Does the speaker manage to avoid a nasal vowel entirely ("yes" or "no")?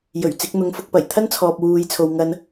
yes